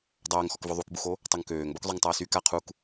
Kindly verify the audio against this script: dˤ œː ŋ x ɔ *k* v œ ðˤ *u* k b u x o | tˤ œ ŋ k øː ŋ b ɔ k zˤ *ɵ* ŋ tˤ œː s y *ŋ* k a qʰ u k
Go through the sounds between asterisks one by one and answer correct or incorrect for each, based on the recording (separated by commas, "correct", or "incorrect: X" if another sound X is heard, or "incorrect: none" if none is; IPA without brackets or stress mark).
correct, correct, incorrect: œ, incorrect: none